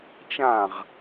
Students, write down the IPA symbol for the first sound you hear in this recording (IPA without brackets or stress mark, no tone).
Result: t͡ʃ